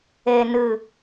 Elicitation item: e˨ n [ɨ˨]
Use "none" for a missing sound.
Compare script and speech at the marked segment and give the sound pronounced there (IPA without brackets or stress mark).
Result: ɨ˨